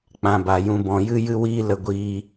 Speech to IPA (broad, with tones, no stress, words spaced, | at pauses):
k͡pã˨ ba˨jũ˧ bɔ̃˨jɨ˦jɨ˦wiː˦ lə˧ɡʷiː˧